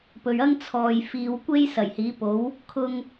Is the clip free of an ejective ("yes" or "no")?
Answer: yes